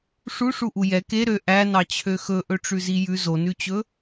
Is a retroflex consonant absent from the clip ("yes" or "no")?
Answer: no